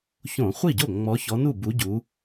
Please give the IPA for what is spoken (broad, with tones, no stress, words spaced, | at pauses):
çõ˧˩˧χʷi˥˩ɟo˥˩ ŋ͡mɔ˨˦çɔ˨˦nu˥˩ bu˨˦ɟu˨˦